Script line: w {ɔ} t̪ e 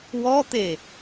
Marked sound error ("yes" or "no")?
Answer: no